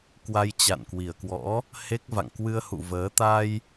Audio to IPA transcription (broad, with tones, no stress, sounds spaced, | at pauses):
k w a˧ j t͡ɕ a̰˧˨ n k w i˨˩ ə̯ k w ɔ̰˧˥ | h e˦˥ k̚ v a̰˧˨ ŋ k w ɨ˧ ə̯ h ṵ˧˨ v əː˨˦ t̪ a˧ j